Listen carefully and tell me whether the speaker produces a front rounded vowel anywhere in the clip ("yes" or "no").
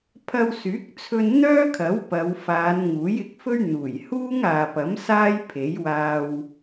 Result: yes